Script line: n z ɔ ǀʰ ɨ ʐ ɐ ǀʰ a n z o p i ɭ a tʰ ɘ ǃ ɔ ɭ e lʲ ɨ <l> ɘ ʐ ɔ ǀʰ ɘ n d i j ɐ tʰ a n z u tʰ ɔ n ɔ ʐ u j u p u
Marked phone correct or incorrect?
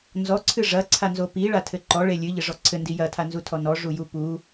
incorrect